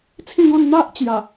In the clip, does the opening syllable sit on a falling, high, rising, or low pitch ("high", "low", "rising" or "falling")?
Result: falling